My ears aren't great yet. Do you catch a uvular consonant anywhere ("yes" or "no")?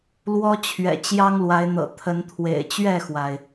no